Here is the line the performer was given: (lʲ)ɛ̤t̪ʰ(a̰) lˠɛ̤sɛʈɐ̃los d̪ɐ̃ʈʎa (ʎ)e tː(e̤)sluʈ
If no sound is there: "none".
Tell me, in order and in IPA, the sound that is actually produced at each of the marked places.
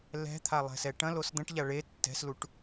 l, a, ɭ, ɛ̤

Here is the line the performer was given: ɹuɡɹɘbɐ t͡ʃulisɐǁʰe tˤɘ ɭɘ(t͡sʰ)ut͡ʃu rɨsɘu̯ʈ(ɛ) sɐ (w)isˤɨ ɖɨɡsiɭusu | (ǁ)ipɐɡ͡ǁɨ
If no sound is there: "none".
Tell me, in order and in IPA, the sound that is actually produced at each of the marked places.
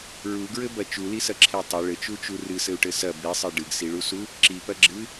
t͡ʃ, ɘ, b, ǁ

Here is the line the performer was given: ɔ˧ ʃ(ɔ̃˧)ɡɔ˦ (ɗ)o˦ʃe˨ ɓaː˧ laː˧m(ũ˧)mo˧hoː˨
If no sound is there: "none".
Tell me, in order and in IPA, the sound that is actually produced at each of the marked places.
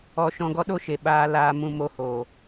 ɔ̃˧, ɗ, ũ˧

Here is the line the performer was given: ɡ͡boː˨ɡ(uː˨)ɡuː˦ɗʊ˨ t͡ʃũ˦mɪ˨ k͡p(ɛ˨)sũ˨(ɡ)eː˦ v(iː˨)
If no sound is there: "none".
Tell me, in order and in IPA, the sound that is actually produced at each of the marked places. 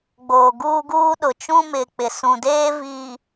uː˦, ɪ˨, d, i˨

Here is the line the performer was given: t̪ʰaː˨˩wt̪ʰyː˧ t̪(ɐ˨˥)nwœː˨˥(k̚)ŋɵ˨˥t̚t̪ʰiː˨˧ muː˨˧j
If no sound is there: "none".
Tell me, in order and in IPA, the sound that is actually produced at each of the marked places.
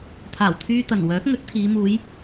ɐ˨˩, k̚

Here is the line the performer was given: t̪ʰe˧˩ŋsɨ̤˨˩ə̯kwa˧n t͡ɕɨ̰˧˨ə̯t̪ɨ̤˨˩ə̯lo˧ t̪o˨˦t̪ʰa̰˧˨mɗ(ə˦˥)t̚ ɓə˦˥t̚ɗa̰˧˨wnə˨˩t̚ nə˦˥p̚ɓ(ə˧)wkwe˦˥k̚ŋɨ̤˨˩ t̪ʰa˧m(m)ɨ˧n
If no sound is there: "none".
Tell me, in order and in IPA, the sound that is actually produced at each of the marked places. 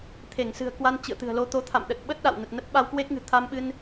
ə˨˩, a˧, ɓ

